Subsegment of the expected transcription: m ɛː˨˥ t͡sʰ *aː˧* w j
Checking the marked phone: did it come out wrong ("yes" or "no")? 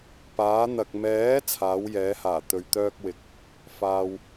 yes